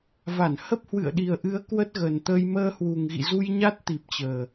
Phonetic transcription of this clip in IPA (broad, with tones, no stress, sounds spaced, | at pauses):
v a˧˩ n h ə˦˥ p̚ h w ɨ̰˧˨ ə̯ ɗ i˨˩ ə̯ ʔ ɨ˨˦ ə̯ k w ə˦˥ t̚ ɣ ə˨˩ n t̪ ə˧ j m əː˧ h w u˨˩ ŋ ɣ ḭ˧˨ z u˧ j ɲ a˦˥ t̚ t̪ i˨˩ p̚ t͡ɕ əː˨˩